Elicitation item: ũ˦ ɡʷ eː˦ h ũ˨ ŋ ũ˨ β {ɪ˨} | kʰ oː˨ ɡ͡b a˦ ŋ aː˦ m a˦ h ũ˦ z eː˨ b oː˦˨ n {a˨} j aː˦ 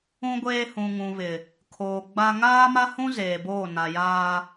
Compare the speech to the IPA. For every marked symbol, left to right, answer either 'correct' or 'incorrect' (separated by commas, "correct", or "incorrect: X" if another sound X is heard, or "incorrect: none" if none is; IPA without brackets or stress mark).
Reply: correct, correct